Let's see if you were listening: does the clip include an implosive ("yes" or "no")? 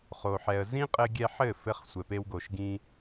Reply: no